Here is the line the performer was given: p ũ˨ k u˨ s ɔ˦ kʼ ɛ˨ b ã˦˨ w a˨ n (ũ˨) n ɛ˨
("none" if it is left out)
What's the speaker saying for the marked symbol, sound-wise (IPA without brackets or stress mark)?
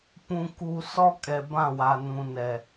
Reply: ũ˨